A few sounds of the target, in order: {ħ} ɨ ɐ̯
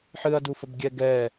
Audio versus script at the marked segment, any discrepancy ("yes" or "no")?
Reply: no